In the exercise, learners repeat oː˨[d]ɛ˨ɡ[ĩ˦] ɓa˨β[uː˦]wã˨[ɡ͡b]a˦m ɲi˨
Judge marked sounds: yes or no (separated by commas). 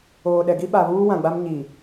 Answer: no, no, yes, yes